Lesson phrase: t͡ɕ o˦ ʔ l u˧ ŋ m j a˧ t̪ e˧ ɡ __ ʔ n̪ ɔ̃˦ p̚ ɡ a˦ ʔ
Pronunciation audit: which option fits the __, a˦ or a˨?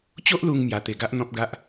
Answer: a˦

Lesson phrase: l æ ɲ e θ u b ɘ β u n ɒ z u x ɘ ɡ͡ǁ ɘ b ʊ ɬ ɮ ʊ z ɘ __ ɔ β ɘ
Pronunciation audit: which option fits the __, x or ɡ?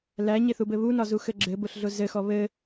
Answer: x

